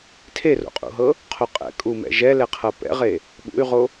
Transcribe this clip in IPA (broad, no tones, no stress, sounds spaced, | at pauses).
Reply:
tʰ e r o̰ qʼ ṵ ɦ ɤ | qʰ o qʼ ɛ̰ kʼ u m ɛ̰ ʒ ɛ l ɛ qʰ ɤ p ɛ̰ ʁ e | ɓ ṵ y̯ ʁ o